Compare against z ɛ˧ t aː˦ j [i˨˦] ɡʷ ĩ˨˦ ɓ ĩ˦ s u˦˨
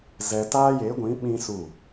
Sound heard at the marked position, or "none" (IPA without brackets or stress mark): e˨˦